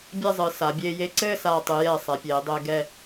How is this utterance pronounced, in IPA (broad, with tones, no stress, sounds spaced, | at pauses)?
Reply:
bʲ ɛ˥˧ zˤ ɨ˩˧ s a˩˧ bʲ eː˧ j e˧ ǀ ɘː˥˧ s aː˧˩ tˤ ɨ˩˧ j ɛ˧˩ sˤ ɛ˩˧ pʲ eː˩˧ dˤ ɘː˧ ɡ ɛ˧˩